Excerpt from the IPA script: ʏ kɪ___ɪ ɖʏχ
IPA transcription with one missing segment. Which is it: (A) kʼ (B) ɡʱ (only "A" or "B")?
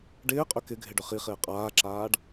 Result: B